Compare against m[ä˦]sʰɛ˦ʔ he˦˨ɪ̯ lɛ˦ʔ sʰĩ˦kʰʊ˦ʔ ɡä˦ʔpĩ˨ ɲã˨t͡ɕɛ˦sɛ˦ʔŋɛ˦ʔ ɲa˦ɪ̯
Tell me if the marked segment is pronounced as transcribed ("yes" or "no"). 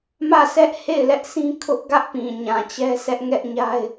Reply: no